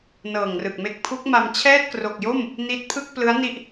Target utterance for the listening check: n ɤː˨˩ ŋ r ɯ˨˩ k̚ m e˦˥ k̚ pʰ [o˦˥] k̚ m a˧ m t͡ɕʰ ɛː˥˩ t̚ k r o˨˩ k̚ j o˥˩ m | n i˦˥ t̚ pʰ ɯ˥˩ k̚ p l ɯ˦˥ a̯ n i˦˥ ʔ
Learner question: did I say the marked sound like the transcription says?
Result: no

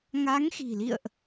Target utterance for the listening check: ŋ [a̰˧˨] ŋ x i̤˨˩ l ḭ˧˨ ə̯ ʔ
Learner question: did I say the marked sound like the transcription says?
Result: no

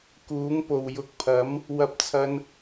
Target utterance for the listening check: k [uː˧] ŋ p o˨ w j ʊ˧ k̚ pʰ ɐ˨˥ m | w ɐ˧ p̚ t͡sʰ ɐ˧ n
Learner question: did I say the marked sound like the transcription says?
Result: no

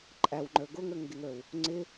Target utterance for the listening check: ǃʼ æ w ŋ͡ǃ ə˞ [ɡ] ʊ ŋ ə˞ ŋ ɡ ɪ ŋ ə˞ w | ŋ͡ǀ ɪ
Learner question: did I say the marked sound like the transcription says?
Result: yes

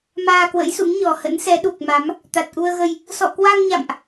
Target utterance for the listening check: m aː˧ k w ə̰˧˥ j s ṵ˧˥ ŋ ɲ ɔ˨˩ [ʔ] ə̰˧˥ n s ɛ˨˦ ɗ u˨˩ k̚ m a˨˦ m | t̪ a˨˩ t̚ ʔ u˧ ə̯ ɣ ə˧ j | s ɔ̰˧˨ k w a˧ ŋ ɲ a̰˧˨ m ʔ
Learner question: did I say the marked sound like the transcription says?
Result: no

